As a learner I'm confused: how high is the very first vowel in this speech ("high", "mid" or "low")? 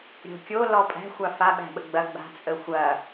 mid